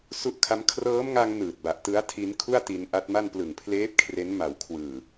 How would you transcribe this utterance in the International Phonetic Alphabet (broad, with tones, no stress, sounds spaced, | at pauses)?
s u˦˥ ʔ kʰ a˦˥ m kʰ r ɤː˦˥ m ŋ a˧ ŋ n ɯː˨˩ t̚ b a˨˩ ʔ t ɯ˦˥ a̯ tʰ i˦˥ n kʰ u˥˩ a̯ t i˧ n ʔ a˦˥ t̚ m a˥˩ n p l ɯ˨˩ ŋ pʰ l eː˦˥ p̚ kʰ r e˦˥ n m a˨˩ w kʰ w ɯː˨˩